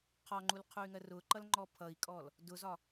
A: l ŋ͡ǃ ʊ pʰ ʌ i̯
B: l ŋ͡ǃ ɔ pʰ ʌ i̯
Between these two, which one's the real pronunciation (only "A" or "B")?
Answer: B